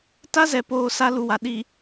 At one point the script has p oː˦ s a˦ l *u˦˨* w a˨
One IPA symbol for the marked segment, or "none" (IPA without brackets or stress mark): u˨